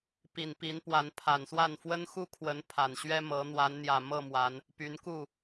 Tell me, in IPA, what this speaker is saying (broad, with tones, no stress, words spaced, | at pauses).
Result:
pi˨˩npi˨˦npwa˨˦n pʰa˨˩nswa˥˨n fwə˦nxu˥˨kʰwə˨˦n pʰa˨˩nɕɥɛ˦mɤ˨˦ n̪wa˨˦nn̪jä˨˩ mɤ˥˨mwa˨˦n | py˨˦nku˥˨